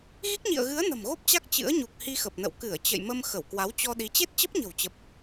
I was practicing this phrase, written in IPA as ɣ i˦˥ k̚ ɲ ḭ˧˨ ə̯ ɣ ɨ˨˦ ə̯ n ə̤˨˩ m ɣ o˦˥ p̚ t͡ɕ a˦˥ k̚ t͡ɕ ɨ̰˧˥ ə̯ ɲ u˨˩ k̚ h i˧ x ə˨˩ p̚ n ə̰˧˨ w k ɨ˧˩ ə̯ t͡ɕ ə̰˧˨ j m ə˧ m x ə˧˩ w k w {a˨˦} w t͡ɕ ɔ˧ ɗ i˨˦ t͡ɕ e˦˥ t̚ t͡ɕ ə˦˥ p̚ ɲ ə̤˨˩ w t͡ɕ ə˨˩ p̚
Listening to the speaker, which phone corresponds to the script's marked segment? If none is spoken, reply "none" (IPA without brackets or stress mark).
a˨˦